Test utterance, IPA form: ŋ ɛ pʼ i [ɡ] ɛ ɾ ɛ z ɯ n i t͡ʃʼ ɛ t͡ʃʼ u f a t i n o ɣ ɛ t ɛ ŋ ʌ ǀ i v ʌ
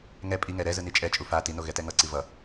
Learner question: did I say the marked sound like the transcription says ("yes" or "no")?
no